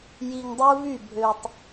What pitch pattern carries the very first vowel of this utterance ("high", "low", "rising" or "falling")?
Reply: low